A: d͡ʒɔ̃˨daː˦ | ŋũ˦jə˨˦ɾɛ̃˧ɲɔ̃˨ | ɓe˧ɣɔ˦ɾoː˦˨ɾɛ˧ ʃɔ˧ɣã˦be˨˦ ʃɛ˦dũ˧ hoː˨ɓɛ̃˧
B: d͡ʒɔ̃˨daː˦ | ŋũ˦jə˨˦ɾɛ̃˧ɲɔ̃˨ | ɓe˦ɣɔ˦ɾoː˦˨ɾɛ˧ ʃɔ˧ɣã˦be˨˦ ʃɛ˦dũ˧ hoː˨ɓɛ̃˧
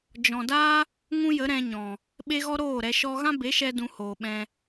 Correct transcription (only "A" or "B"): B